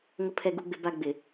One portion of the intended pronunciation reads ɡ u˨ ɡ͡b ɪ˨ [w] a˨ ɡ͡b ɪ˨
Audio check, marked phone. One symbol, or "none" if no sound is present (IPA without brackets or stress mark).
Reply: b